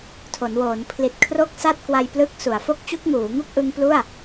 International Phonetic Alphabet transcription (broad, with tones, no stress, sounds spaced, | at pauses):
tʰ o˩˦ n w oː˩˦ n pʰ l i˨˩ t̚ kʰ r o˥˩ k̚ s a˥˩ t̚ k w a˧ j p l ɯ˦˥ k̚ s u˩˦ a̯ f o˦˥ k̚ t͡ɕ u˦˥ k̚ ŋ uː˩˦ ŋ u˥˩ k̚ ʔ ɯ˦˥ ŋ p l u˥˩ a̯